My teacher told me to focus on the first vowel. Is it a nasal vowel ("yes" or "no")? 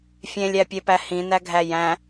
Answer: yes